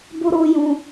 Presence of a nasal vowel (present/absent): present